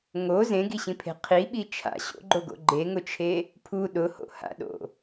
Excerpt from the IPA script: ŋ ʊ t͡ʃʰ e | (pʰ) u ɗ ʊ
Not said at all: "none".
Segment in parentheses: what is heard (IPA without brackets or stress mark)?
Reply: pʰ